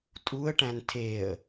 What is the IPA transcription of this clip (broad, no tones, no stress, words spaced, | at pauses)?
tʼuə̯ʈæ̃n tʰeə̯